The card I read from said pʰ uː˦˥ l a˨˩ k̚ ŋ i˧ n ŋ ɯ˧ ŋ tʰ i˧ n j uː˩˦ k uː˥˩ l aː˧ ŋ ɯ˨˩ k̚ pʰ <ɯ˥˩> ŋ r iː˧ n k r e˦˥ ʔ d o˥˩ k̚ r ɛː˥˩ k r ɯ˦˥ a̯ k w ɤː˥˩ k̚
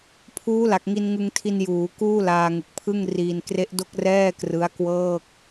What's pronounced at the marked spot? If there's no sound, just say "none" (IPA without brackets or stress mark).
ɯ˥˩